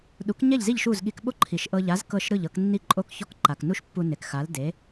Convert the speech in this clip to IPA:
ɗ u˩˥ k ɲ ɛ˥˩ ʎ z i˥˩ ʎ ʃ u˥˩ z ɠ i˧ k ɓ o˥ ǃʰ i˩ ʃ ʔ ɤ˧ ʎ a˩˥ z k ɤ˥˩ ʃ ɾ ɯ˥˩ ʎ ɤ˧ k nː i˥˩ ǃʼ o˥˩ k ç ɔ˥˩ k ǃ a˩ k n u˥ ʃ pː u˧ n e˩ k x a˩˥ l d e˩˥

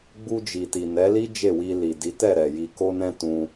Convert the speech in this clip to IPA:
ɡ͡b u˧ d͡ʒ i˨ t i˨ n ɛ˨˦ l i˦ d͡ʒ e˦˨ w i˧ l i˨ d i˨˦ t ɛ˦˨ ɾ ɛ˨ j i˨ k o˧ n ɛ̃˧ t ũ˧

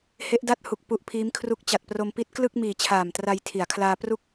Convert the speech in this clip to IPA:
h e˦˥ ʔ d a˥˩ t̚ h u˨˩ k̚ p u˦˥ ʔ pʰ iː˦˥ m kʰ r u˦˥ k̚ t͡ɕ a˨˩ t̚ p r o˧ m p i˦˥ t̚ k l ɯ˥˩ k̚ m iː˨˩ t͡ɕʰ aː˨˩ m t r a˧ j tʰ i˩˦ a̯ kʰ l aː˧ p r u˦˥ k̚

